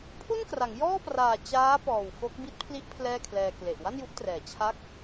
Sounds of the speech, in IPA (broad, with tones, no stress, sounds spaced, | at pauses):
pʰ u˥˩ n k r a˩˦ ŋ j ɔː˥˩ p r aː˨˩ t͡ɕ aː˦˥ p ɔː˨˩ w f o˦˥ k̚ b i˦˥ t̚ pʰ l i˦˥ ʔ pʰ l ɛː˥˩ kʰ l ɛː˧ k l e˨˩ ʔ w a˥˩ n j u˥˩ ʔ t r ɛː˩˦ t͡ɕʰ a˦˥ k̚